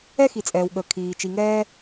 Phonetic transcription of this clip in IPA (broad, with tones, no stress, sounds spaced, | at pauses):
ɛ˥ x i˩ t͡sʼ ɛː˩ w ɠ ə˩ kʰ iː˩ t͡ʃ i˩ ŋ ɛː˥